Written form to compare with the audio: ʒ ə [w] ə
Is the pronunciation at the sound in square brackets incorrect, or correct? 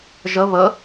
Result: incorrect